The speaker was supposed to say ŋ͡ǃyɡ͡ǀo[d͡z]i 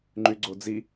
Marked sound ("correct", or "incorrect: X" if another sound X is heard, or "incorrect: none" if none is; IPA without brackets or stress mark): correct